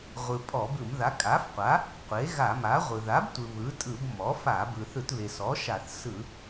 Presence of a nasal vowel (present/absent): absent